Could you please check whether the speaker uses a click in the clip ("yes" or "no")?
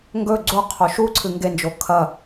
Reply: yes